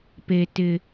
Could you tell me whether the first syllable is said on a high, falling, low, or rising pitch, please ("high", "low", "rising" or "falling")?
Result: high